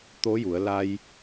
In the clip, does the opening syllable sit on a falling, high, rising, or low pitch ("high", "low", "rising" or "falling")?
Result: rising